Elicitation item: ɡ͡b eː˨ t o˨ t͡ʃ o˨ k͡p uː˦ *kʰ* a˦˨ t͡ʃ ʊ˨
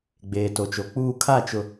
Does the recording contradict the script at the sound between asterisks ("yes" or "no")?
no